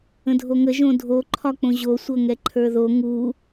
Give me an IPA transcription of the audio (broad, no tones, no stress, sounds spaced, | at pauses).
ə̃ dʱ o ŋ ə ʒ õ dʱ o ǃʰ ɒ k͡p õ ʑ o sʷ ɤ ŋ ɛ ǃʰ ə˞ ð o ŋ u